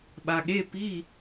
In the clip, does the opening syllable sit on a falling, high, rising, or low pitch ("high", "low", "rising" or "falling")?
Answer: low